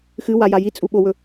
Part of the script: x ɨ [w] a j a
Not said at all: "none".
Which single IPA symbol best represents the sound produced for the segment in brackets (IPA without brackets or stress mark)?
w